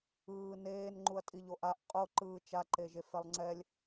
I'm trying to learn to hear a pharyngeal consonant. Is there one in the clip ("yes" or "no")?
no